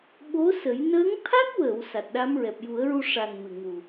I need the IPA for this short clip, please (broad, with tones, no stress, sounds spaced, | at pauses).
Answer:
ɓ o˧˥ s ə˨˩˦ j n əː˧˥ ŋ t̪ʰ a˦˥ k̚ w əː˨˩˨ w s a˨˩ t̚ ɗ a˧˥ m ɹ ɛ˨˩ p̚ j u˨˩˦ ə̯ ɹ u˧ ʂ a˨˩ n m ɨ˨˩ ŋ u˨˩